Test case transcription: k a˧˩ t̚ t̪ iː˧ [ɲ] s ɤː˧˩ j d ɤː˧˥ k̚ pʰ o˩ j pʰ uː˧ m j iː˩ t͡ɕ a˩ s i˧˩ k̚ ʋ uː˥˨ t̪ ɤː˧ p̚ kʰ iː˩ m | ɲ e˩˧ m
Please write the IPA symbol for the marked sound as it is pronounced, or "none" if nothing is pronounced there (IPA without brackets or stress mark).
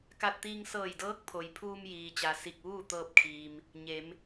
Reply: ŋ